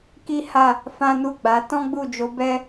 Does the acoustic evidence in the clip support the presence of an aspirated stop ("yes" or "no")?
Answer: no